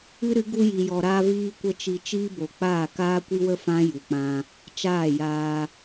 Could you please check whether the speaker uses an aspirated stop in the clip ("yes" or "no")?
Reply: no